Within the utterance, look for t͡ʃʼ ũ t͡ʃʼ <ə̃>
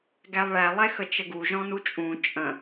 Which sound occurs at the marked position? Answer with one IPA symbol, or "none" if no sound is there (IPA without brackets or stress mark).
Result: ə̃